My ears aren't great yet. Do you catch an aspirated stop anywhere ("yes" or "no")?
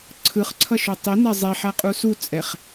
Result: yes